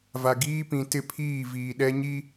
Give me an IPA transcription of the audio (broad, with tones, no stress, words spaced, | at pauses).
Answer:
va˨ɡiː˦pĩ˨tɪ˦˨ pʰiː˦˨viː˨ɗɛ˦ ɲi˦